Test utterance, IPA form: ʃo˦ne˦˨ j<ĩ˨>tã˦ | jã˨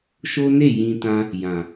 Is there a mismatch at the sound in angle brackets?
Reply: yes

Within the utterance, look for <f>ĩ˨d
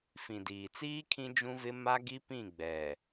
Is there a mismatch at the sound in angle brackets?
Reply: no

